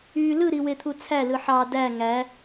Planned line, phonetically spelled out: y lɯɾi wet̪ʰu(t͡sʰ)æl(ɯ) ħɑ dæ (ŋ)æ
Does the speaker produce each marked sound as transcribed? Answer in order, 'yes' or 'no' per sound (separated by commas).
yes, yes, yes